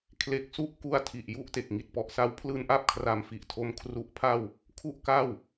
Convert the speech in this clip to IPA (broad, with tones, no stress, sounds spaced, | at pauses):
kʰ l e˦˥ k̚ s u˥˩ ʔ k u˧ a̯ tʰ i˨˩ ʔ j u˦˥ ʔ t e˨˩ k̚ ŋ i˨˩ t̚ p ɔ˨˩ ʔ s a˧ w pʰ l ɯː˧ n ʔ a˥˩ p̚ kʰ r a˧ m f i˨˩ ʔ tʰ o˦˥ m kʰ r u˨˩ ʔ pʰ a˧ w | kʰ u˥˩ ʔ k a˥˩ w